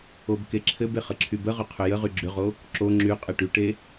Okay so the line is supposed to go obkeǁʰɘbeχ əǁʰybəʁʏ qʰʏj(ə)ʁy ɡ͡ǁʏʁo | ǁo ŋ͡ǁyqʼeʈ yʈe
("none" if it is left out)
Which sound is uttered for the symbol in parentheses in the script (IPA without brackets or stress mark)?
ə